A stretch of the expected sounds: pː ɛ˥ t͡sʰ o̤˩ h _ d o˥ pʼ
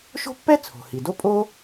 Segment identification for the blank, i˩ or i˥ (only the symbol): i˩